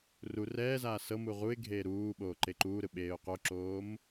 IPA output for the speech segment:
r u r ɛː z aː s ɤ m u ʁ u ɪ̯ ɡʱ eː ɾ uː ɓ oː ǃ e ǃ uː ɾ ɯ ɓ eː ʊ̯ q o ǁ oː m

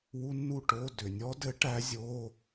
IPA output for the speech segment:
w u˦˥ nː u˥˨ ʈ o˧˥˧ d ʏ˩ nʲ ɔ˦˥ d ɘ˦˥ ʈ æ˦˥ zʲ o˧˥˧

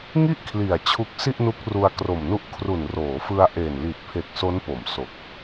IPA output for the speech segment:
ŋ i˥˩ ʔ kʰ l i˨˩ a̯ t͡ɕʰ u˦˥ k̚ s i˥˩ ʔ n u˦˥ k̚ r u˧ a̯ k r o˨˩ m n u˦˥ ʔ kʰ r u˨˩ n r oː˩˦ f ɯ˧ a̯ ʔ eː˨˩ n l i˨˩ t̚ pʰ e˨˩ k̚ s o˦˥ n p o˩˦ m s o˨˩ k̚

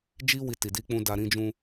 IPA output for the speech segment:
d͡ʒ i˦ w i˧ t i˨ d i˧ k͡p ũ˧ d a˧ ɾ ĩ˧ d͡ʒ ũ˧

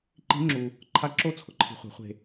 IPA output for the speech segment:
ǃ i̤˦˥ ŋ͡ǁ u˧ | ǃʰ a˦˥ ǁ o˥˧ t͡sʰ ʊ˧ ǃʰ i̤˧ χʷ ɛ̤˨˥ χʷ e̤˧

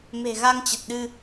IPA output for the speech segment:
m e̤˨˩ ɣ a˧ ŋ t͡ɕ ə˨˩ t̚ ɗ ɨ˧

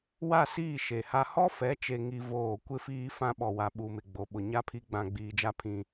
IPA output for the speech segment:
w a˦˨ s iː˦˨ ʃ e˨ h a˦ h ɔ˦ f ɛ˨˦ t͡ʃ e˨ ŋ i˦ v oː˦˨ kʷ ɪ˦ f iː˦ f ã˦ ɓ ɔ˨ w a˨ ɓ u˨ m ɪ˨ ɡ͡b o˨ ɓ ʊ˨ ɲ a˦ pʰ i˦ ɡ͡b ã˨ ɡ͡b iː˨ d͡ʒ a˦ pʰ ĩ˨

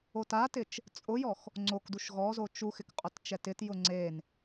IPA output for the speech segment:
o t a t ɪ t͡ʃ | t͡sʼ ʊ j ɔ x | ŋ͡ǀ o k d u ʃ ɣ ɔ z o t͡ʃ u x ɪ k qʼ ʊ t t͡ʃ ɛ t ɪ t j ʊ ŋ͡ǀ e n

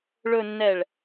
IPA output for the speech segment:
ɭ ɵ˨ nː ɛ˨ ɭ

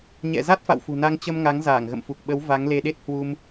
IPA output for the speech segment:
ɲ ɛ̰˧˨ z a˦˥ t̚ f a̰˧˨ w f ṳ˨˩ n a˧ ŋ t͡ɕ ə˧ m ŋ a˨˦ ŋ z aː˧˩ ŋ ɣ ə̰˧˨ m f u˨˩ k̚ ɓ ə˨˦ w v a˨˦ ŋ l e˧ ɗ e˦˥ t̚ h w u˧ m

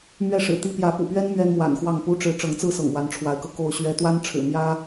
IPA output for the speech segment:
m ɥ ɛ˥˨ ʂ ɻ̩˨˩ t̪ i˦ p j ä˨˦ p ṵ˨˩ p ɥ ɛ˦ n m ɥ ɛ˦ n m w a̰˨˩ n x w ɑ˥˨ ŋ p u˦ ʈ͡ʂ ɻ̩˨˦ ʈ͡ʂ ɤ˨˦ ŋ t͡s ɹ̩˥˨ s ɤ̰˨˩ ŋ w a˨˦ n ʈ͡ʂʰ w a˨˦ ɪ̯ k ɤ˧ k o˥˨ ʊ̯ ɕ ɥ ɛ˦ t̪ w a˦ n ʈ͡ʂʰ ɻ̩˨˩ m j ä˦

